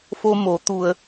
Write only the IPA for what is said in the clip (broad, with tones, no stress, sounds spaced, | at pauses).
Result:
f o˧ m o˩˧ t̪ u˧ ə̯